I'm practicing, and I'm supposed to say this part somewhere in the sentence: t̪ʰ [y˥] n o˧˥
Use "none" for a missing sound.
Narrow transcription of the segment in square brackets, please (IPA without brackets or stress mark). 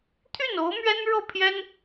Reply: y˥˩